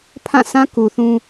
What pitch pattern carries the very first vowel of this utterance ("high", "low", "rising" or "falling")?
falling